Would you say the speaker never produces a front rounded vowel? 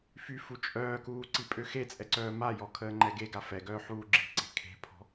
no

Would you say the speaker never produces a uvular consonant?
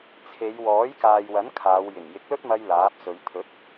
yes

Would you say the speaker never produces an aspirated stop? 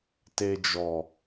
yes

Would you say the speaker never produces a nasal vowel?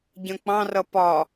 no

